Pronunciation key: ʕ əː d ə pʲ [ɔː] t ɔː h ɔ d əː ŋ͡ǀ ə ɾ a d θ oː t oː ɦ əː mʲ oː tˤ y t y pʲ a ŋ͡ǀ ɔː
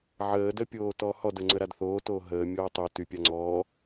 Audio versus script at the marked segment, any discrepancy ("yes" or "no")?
yes